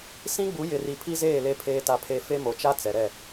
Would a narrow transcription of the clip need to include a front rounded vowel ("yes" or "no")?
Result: no